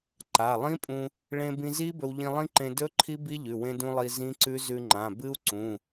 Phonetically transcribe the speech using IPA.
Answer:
ǃa˩˧˩lˠĩ˦˥pʼũ˧ | ɭẽ˧bĩ˧zi˦˥ bɵ˧wʎĩ˧lˠĩ˦˥ǃẽ˧ dɵ˦˥ ǃʰi˦˥bi˦˥ʎʉ˩˧˩ wẽ˧dũ˧ lˠi˧zĩ˦˥ǀʉ˦˥ zʉ˧ŋ͡ǃã˩˧˩bɨ˦˥u̯ ǀũ˩˧˩

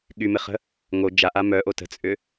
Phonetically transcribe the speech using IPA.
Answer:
ɠymɪχə̤ | ŋo d͡ʒaʔa mœʔo tə̤t͡sʼʏ

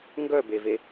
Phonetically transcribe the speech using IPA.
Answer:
ŋɡœbeve

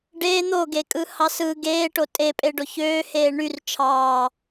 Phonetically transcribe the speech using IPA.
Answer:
ɖeː n̪oɡekʼɯhɑs ɯ ɡeːʈo tʼepʼeɖo çøːheː ɳyr t͡ʃʰɑː

